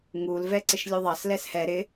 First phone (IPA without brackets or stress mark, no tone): ŋ